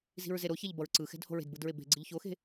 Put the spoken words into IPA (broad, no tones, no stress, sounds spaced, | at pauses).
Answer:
z i̤ ɹ z e ɾ o ç ɛ ʎ b ʌ ɹ ǀ ɯ x ɛ̤ d h o̤ ɹ e̤ d b ɯ d ɹ e b e̤ ɡ͡ǀ ɯ ʎ ç o x e̤